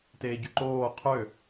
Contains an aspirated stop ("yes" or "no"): yes